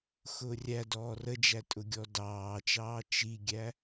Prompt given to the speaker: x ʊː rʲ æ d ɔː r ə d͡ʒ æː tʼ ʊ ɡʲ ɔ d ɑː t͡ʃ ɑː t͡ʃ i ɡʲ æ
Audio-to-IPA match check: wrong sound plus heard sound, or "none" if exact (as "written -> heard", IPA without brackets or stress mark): æː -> æ